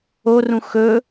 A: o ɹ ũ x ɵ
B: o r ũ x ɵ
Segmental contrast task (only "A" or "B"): B